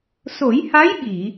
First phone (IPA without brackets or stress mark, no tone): s